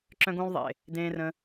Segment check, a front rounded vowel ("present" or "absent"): present